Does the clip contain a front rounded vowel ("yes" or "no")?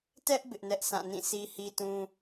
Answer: no